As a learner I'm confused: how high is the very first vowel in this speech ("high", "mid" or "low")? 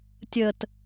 mid